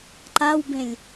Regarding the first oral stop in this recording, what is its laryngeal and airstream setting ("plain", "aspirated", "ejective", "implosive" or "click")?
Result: click